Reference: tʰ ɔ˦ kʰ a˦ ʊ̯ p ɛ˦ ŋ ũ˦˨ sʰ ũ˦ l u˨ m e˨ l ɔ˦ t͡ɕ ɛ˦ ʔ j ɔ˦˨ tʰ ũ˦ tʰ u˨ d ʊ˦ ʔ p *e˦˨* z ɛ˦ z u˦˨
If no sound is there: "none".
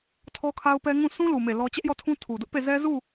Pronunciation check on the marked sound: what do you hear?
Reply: e˦˨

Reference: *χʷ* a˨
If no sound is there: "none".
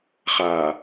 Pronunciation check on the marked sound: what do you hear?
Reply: χ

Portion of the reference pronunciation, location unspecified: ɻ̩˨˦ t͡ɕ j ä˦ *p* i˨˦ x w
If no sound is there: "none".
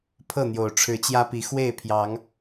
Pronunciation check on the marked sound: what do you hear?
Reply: p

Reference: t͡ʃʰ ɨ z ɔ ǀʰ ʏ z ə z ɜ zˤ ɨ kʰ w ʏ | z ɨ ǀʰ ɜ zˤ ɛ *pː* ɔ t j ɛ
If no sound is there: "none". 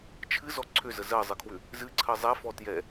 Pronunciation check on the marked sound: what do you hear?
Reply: f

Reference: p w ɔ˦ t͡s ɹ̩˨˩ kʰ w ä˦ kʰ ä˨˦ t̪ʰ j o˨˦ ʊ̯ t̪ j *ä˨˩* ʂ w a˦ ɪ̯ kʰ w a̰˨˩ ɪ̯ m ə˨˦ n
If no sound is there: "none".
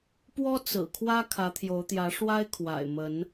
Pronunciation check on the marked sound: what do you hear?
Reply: ä˨˦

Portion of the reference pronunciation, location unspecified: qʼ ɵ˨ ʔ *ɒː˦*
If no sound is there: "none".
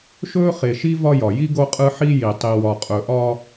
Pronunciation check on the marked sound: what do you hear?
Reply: ɒː˦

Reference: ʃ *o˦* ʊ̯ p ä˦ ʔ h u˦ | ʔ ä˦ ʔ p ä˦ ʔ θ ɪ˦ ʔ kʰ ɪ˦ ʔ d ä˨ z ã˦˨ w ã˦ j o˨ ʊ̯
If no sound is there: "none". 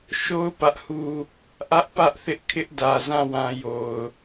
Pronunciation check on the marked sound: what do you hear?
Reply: o˦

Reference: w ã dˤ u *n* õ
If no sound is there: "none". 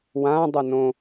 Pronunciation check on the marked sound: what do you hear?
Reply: n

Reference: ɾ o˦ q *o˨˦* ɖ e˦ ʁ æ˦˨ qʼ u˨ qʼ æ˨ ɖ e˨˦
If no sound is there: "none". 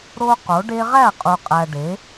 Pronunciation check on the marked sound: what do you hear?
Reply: o˨˦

